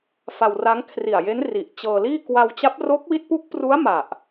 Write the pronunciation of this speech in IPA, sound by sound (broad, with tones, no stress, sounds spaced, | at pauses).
f a˧ w r a˦˥ ŋ kʰ r i˨˩ a̯ j e˦˥ n r i˨˩ ʔ t͡ɕ ɤː˧ l iː˥˩ k w a˧ w t͡ɕ a˦˥ p̚ r o˦˥ k̚ w i˦˥ t̚ p u˦˥ k̚ p r u˦˥ a̯ m a˨˩ ʔ